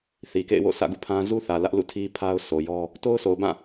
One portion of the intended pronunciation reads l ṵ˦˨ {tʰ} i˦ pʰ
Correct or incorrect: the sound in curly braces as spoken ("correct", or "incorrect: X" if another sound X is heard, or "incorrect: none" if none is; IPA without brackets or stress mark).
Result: correct